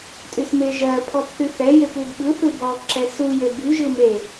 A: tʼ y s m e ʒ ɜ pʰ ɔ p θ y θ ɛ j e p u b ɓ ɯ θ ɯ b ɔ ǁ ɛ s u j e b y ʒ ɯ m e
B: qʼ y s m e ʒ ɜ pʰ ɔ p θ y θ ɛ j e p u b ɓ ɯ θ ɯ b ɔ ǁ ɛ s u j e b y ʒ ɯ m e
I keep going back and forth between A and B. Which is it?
A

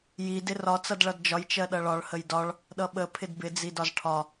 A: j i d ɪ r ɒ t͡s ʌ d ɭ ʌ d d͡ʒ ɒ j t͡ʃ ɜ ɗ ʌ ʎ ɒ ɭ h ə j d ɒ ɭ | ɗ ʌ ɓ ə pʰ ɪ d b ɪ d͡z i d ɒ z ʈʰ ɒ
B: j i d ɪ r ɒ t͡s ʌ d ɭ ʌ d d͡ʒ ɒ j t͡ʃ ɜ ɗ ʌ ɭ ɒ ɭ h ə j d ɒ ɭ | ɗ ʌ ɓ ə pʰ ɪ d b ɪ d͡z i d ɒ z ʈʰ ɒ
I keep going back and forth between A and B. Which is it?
B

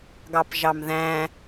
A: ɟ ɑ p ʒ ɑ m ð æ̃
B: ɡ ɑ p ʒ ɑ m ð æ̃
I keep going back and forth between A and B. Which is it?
B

